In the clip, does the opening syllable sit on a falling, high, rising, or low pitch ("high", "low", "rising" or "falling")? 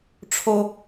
low